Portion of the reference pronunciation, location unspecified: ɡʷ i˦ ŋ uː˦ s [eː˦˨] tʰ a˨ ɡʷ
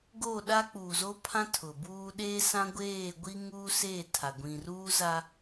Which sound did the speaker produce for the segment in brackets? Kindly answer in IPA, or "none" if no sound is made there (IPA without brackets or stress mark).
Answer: eː˦˨